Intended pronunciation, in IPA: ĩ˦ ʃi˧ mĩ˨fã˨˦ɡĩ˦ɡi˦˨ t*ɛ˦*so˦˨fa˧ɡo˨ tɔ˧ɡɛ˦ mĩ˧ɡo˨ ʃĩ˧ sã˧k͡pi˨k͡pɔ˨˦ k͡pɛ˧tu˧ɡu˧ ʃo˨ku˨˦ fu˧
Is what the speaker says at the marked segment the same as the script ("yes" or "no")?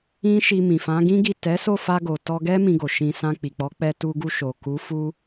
no